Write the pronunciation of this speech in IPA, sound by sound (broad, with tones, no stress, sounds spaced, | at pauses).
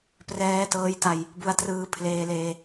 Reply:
p r ɛː˦˥ t ɤː˦˥ j t a˧ j | b u˧ a̯ t r ɯː˧ pʰ l eː˧ l eː˧